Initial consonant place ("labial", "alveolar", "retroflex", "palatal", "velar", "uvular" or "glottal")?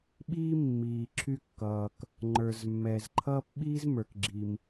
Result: labial